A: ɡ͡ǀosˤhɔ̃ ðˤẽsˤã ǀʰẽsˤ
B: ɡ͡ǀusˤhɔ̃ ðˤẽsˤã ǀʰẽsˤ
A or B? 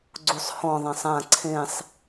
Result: B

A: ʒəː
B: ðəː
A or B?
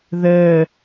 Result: B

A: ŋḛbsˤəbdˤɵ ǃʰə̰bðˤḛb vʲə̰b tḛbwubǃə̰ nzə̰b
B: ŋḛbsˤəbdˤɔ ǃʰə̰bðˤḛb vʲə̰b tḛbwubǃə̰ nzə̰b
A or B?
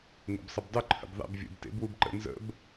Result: A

